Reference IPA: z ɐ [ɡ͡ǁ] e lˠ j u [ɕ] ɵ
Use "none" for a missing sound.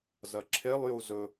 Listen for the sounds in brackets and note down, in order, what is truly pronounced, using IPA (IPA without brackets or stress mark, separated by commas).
ǁʰ, z